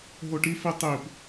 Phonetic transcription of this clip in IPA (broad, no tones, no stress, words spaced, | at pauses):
ɦoʈi fitˤip